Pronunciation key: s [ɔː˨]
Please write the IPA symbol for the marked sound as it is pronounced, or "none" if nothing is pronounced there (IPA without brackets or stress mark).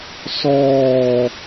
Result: ɔː˨